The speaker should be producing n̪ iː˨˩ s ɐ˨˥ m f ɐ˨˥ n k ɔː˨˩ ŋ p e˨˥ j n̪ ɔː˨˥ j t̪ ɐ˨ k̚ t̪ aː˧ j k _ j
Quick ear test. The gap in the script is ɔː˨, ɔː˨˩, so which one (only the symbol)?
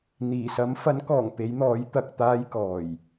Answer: ɔː˨˩